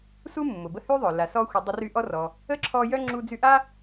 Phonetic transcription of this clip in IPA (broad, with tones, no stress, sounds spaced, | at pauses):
s u˥ mː ʊ˩ b ə˦ h y˥ ðˤ œ˩ l a˨ s ɔ˦ xʷ ə˨ dˤ ə˦ r y˦ ʔ ɔ˥ r ɔ˨ | ə˥ ǁʰ ɔ˦ j œ˥ ŋ͡ǁ u˦ d͡z y˦ ʔ a˥